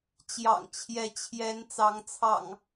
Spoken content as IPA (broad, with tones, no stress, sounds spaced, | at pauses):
t͡ɕ j ɑ̰˨˩ ŋ t͡ɕʰ j ɛ˨˦ t͡ɕʰ j ɛ˨˦ n t͡s ɑ˨˦ ŋ t͡sʰ ɑ̰˨˩ ŋ